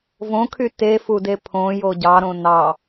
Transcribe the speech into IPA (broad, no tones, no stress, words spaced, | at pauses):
võkʰy tefude pʰõjo ɟɑɾõ nɑ